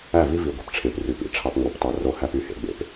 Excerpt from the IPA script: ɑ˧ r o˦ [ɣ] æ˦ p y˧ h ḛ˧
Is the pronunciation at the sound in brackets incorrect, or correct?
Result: incorrect